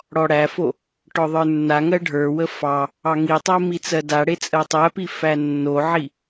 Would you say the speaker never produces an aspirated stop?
yes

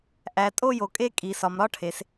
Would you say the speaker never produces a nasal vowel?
yes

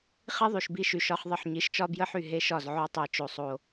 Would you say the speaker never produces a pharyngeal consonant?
no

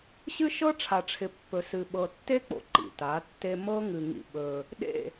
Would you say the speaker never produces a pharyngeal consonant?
yes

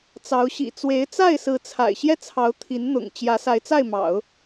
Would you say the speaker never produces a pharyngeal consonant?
yes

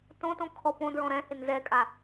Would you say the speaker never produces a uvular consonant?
yes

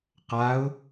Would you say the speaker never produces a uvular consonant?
no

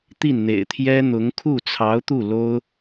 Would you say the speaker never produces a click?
yes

